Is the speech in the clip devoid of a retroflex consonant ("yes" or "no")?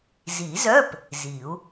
yes